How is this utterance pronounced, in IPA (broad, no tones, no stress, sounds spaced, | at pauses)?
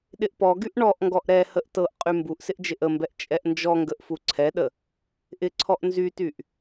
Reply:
ɗ ɪ ʔ p ɔ ɡ y ʔ ɳ ɔ ʔ ŋ ɡ ɔ ʔ ɾ ɛ h ə ʔ t ɤ ʔ qʼ y m b u ʔ s ɪ ʔ d͡ʒ ɪ ʔ ə m b ɛ ʔ t͡ʃʼ ɛ ʔ n d͡ʒ ɔ ŋ ɡ ə ʔ f u ǀʰ ɛ ɗ ə | ʔ ɪ ǀʰ ɔ ʔ n z y t y ʔ